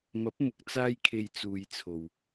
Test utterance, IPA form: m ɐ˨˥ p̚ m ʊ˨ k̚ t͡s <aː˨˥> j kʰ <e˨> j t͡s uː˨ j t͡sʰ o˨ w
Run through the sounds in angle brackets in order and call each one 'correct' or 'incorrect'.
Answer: incorrect, correct

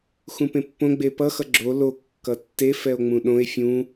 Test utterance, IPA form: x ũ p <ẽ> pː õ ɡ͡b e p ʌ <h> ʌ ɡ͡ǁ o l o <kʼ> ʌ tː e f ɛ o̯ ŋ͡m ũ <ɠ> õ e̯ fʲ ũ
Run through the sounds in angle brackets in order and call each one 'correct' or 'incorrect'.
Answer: correct, incorrect, incorrect, incorrect

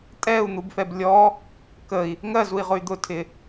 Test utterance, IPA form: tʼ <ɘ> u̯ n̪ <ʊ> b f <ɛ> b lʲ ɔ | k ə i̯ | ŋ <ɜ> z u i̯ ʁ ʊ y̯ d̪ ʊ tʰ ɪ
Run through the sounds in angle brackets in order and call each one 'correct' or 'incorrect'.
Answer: incorrect, incorrect, correct, correct

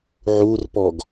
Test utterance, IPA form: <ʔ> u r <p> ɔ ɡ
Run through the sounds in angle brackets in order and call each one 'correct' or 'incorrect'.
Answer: incorrect, correct

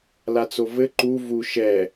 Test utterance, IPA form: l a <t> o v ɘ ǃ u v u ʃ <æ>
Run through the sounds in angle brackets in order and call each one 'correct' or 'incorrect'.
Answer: incorrect, incorrect

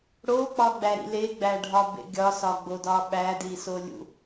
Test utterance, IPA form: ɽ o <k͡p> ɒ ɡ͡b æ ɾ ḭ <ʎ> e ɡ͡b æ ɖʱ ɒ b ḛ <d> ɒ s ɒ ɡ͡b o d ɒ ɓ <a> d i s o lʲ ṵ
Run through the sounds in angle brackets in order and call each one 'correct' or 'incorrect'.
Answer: correct, incorrect, incorrect, incorrect

